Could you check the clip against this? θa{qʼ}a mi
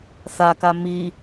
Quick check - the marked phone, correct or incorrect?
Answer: incorrect